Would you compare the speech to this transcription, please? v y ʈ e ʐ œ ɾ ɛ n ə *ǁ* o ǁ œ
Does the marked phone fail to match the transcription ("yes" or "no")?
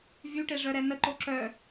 yes